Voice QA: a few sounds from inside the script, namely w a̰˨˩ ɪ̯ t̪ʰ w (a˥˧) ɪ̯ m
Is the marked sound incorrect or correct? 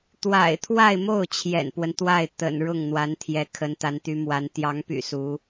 correct